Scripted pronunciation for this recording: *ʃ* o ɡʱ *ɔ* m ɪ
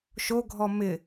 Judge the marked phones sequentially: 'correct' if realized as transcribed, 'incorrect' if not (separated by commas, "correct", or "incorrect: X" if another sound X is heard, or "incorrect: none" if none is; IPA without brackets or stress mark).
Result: correct, correct